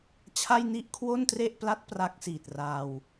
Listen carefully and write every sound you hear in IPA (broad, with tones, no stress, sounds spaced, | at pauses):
t͡ɕʰ a˥˩ j n i˥˩ ʔ kʰ w o˥˩ n t r e˥˩ ʔ p l a˦˥ t̚ p r a˦˥ k̚ s iː˨˩ t̚ r aː˧ w